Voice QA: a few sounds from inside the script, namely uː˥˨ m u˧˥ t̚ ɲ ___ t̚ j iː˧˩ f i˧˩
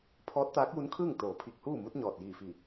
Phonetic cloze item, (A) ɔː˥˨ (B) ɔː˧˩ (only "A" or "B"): B